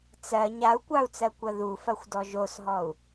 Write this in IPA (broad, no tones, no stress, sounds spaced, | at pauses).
t͡s ɜ ɲ a u̯ kʷ ɑ u̯ t͡s ɜ kʷ ɐ ð u f ɐ xʷ d ɔ ʒ o s ɦ ɔ u̯